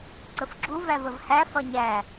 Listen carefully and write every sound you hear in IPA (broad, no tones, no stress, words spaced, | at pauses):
ǀəfɡ͡ǁu vævəvhæ fɒɲæ